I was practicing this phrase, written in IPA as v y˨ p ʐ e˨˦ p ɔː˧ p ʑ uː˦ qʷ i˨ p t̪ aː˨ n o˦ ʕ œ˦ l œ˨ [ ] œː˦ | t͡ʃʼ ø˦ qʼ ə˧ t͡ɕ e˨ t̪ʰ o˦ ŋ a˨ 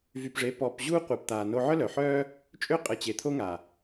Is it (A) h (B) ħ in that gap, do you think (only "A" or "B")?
B